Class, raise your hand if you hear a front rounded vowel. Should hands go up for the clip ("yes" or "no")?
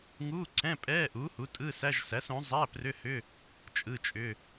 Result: yes